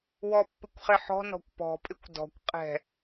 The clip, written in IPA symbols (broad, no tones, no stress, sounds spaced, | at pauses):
w ɔ pː ɪ kʷ χ ɪ ħ ɔ̤ n ɔ̤ kʷ p ɔ̤ pʼ ɪ kʷ d ɔ̤ kʷ qʼ ɛ̤